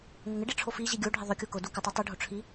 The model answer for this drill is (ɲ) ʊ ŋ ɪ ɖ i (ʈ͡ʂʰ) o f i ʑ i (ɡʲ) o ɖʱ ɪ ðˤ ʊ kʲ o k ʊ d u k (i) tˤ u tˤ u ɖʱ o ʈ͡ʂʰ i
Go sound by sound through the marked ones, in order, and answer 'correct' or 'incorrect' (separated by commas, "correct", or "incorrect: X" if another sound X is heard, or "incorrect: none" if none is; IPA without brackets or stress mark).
incorrect: ŋ, correct, correct, incorrect: ɪ